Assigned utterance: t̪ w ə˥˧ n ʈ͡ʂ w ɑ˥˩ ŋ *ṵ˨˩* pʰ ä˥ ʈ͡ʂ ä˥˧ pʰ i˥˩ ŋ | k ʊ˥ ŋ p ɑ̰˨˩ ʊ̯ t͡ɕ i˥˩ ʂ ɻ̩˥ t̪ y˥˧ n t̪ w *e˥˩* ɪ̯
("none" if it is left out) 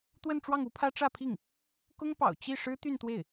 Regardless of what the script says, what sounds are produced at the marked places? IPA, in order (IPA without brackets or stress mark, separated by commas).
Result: u˥, e˥˩